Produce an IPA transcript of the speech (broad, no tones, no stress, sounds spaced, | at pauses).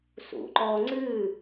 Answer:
s ṵ ǃ ɔ ŋ͡ǀ ɨ